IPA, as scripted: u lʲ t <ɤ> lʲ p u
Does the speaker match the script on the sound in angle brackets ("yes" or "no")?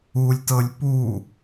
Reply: yes